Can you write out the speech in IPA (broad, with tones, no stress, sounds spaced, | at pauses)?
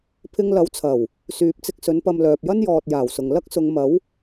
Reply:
pʰ ɪ˧ ŋ l ɐ˨˧ w t͡sʰ ɐ˨˩ w | s yː˨ p̚ t͡s ɪ˧ k̚ s ɵ˨˥ n p ɐ˧ m l œː˨ p̚ j ɐ˥ n j ɔː˨ t̚ j aː˨˩ w s ʊ˨ ŋ l ɐ˥ k̚ s ʊ˨˧ ŋ m ɐ˨˥ w